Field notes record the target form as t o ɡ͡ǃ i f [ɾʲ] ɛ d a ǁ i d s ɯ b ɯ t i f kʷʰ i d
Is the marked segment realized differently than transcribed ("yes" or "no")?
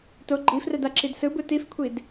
yes